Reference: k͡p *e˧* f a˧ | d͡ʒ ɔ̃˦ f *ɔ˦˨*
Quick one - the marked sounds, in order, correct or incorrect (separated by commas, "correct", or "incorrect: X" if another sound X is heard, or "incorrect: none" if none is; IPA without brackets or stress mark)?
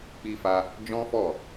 incorrect: i˧, correct